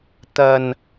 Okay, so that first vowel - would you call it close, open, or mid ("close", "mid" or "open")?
open